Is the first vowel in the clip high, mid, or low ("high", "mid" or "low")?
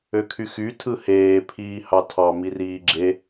mid